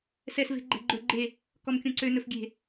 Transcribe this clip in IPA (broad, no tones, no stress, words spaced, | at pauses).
sɛs ve̤ɡ͡ǃɛ̤ɡ͡ǃɵ ɡ͡ǃe | kɔmkʲõǀø nɵfɡʲe̤